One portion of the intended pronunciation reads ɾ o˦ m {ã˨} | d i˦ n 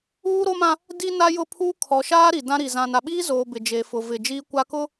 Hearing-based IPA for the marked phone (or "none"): ã˦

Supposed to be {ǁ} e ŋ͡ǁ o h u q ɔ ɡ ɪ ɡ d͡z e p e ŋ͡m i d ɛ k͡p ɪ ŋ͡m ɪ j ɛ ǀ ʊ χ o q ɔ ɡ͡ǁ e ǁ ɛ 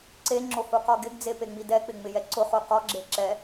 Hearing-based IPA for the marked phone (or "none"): ǀ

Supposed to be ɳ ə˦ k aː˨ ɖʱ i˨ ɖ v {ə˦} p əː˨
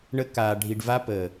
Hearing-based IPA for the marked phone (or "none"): a˦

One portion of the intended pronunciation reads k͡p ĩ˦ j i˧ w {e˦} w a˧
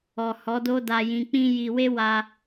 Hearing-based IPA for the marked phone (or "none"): e˦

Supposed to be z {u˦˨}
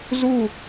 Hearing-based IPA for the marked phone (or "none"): u˦˨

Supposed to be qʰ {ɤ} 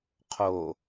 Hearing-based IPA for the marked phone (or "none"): o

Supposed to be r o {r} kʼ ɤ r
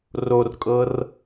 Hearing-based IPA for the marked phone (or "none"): r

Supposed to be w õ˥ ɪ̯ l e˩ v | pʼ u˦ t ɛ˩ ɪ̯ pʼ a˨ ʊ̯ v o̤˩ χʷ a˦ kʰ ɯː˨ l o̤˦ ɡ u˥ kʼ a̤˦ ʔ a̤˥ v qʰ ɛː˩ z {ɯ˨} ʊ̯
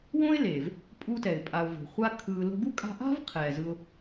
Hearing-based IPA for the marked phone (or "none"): ɯ˨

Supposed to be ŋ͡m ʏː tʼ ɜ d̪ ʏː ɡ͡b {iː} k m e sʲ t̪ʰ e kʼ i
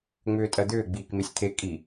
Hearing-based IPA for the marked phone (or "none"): iː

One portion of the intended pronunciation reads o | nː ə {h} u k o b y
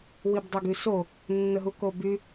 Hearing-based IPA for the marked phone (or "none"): ɦ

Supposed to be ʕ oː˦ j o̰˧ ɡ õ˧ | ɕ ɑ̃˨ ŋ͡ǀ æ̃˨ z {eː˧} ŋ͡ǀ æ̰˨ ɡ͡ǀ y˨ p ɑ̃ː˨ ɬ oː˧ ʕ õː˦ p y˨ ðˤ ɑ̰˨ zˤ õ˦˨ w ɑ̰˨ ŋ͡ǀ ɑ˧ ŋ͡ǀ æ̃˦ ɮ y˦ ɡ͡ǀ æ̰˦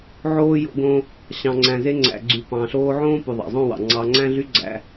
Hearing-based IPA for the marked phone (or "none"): e˧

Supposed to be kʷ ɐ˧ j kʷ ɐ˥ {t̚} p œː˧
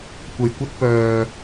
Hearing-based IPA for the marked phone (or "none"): t̚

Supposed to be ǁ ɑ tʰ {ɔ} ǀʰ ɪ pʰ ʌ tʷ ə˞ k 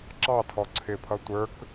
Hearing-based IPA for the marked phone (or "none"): ɔ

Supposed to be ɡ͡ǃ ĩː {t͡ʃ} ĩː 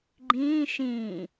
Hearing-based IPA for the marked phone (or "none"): ʃ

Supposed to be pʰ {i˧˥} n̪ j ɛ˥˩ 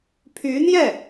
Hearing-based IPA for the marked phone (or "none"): y˧˥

